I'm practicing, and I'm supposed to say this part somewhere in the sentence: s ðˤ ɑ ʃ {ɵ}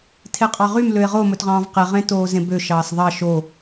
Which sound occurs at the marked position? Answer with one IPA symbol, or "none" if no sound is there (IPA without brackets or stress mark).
o